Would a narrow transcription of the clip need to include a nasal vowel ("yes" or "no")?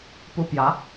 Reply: no